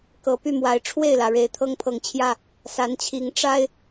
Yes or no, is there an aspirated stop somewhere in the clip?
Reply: yes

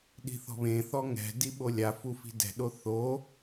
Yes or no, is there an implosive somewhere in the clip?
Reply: yes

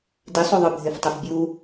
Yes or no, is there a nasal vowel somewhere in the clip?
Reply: no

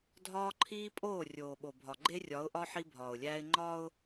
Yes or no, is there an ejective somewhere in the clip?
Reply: yes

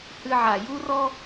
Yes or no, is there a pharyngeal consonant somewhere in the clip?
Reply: yes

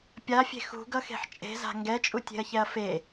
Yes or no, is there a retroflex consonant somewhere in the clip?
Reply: no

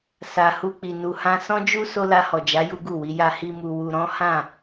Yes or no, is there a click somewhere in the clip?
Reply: no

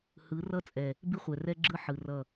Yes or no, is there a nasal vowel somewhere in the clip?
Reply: no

